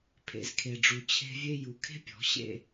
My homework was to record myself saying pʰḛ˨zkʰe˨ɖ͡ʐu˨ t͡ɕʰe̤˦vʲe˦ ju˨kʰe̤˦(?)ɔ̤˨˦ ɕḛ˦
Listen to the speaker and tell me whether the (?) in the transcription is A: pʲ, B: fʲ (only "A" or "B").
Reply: A